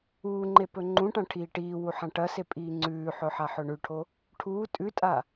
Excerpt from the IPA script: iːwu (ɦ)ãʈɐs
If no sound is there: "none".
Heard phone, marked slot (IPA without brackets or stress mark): ħ